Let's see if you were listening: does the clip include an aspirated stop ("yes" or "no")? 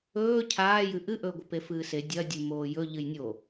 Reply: yes